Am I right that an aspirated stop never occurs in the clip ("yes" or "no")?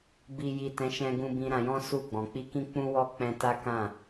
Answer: yes